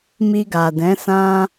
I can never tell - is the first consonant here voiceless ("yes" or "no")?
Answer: no